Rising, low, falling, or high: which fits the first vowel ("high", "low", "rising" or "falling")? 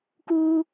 high